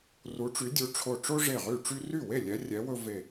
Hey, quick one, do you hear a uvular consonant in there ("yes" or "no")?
yes